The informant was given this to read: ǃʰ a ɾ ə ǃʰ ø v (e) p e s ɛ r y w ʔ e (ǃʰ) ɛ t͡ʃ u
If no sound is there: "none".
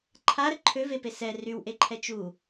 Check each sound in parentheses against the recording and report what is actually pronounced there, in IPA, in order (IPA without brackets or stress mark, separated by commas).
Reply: e, ǃʰ